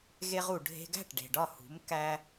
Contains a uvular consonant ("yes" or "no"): yes